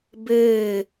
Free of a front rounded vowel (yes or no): yes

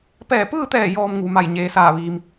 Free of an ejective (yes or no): yes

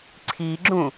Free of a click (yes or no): no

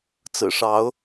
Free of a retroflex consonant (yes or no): no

